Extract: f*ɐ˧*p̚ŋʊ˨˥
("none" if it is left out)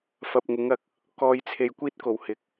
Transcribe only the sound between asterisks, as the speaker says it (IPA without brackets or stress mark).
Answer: ɐ˧